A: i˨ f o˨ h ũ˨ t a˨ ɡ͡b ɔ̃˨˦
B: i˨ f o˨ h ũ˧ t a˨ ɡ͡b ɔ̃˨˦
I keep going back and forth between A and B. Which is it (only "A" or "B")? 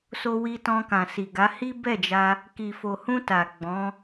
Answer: B